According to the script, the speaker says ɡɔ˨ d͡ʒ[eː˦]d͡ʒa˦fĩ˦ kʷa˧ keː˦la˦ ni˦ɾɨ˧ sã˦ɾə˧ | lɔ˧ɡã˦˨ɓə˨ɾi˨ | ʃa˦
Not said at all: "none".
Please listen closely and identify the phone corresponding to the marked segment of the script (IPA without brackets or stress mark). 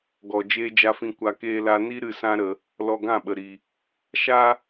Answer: eː˦